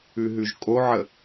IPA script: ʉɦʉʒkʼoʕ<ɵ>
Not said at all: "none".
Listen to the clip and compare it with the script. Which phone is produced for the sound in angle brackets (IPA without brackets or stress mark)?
ə